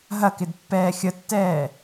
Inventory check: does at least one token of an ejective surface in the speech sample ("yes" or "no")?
no